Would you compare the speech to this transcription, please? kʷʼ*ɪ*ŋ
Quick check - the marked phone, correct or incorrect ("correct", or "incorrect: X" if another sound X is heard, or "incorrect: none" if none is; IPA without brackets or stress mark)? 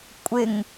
correct